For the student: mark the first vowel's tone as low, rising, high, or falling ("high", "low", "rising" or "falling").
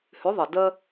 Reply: rising